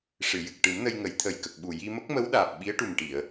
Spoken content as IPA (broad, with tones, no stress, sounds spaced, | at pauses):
ʂ ɨ˨˩˨ j ɨ˨˩ k̚ ʈ ɨ˨˩˦ m n ə˧ j ŋ ə˨˩˦ j t̪ʰ ə˨˩ j k ə˨˩ k̚ ɓ u˨˩ j i˧ m ə˦˥ k̚ m ə˧˥ w ɗ aː˨˩ p̚ ɓ i˧˥ ə̯ ʈ u˨˩ m ʈ i˨˩˨ ə̯